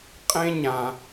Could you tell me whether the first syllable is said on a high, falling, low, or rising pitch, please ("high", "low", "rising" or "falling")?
high